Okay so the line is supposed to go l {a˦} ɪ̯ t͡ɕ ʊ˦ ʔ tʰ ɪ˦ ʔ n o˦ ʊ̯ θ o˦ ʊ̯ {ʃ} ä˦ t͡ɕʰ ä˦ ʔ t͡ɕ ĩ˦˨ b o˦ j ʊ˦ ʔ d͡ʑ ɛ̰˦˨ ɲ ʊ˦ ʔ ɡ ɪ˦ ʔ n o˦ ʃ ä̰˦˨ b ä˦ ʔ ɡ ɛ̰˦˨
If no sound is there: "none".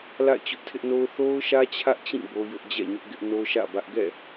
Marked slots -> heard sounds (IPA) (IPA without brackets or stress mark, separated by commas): a̰˦˨, ʃ